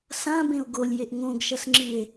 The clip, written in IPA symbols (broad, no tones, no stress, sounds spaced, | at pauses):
s ã b ẽ o̯ ɡ o lʲ j e ʔ ŋ õ ɡ ʃ ɐ s ŋ͡ǁ ɨ e̯